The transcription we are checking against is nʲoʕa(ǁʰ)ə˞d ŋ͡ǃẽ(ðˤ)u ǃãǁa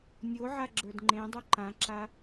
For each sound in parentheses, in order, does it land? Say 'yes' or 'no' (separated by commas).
no, no